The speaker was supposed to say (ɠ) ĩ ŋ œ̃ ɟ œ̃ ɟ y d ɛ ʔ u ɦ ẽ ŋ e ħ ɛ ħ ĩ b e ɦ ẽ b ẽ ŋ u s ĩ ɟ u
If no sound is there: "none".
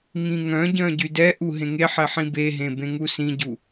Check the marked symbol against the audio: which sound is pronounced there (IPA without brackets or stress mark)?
ŋ